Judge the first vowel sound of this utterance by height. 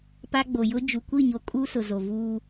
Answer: low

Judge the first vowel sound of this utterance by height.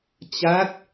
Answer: low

